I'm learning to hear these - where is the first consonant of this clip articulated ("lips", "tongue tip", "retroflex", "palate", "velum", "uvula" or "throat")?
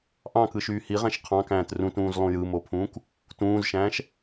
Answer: throat